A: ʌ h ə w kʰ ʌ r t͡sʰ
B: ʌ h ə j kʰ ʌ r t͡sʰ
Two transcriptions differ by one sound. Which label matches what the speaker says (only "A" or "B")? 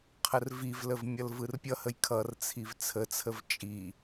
B